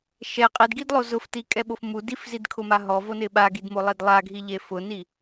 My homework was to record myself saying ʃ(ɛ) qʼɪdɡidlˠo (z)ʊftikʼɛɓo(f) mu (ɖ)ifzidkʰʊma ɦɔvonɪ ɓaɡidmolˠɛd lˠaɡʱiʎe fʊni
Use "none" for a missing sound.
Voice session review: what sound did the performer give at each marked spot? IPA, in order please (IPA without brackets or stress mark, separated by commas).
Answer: ɛ, z, f, d